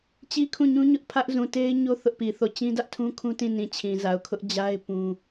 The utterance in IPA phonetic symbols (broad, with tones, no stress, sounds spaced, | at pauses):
t͡ɕ i˦ kʰ ũ˦˨ ɲ ũ˦ ɲ ʊ˦ ʔ pʰ ä˦ ʔ z ũ˨ t e˦ ɪ̯ ɲ o˦ θ ʊ˦ ʔ p i˨ θ o˦˨ t͡ɕ ĩ˦ d ä˦ ʔ tʰ ũ˦ kʰ ũ˦ t ĩ˦˨ n ĩ˨ t͡ɕʰ ĩ˨ z a˨ ʊ̯ kʰ ʊ˦ ʔ d͡ʑ a˦ ɪ̯ p ũ˦